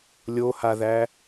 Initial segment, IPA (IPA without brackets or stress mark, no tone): lʲ